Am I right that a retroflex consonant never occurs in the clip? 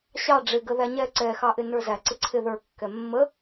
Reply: no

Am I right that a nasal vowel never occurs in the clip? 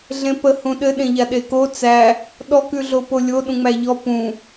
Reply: no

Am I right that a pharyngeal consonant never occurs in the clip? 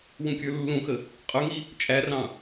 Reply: yes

